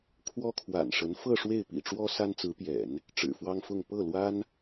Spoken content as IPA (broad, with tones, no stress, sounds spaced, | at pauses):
kʰ w ɔ˥ kʰ w a̰˨˩ n ʂ ə˧˥ n f ɤ˥˧ ʂ w e˥˩ ɪ̯ p ḭ˨˩ ʈ͡ʂ w ɔ˥ s a˥ n t͡s ɹ̩˧˥ p j ɛ̰˨˩˦ n | ʈ͡ʂ ɻ̩˨˩ f w ɑ˥ ŋ f ʊ˥˧ ŋ p ɤ˥˩ l w a˥ n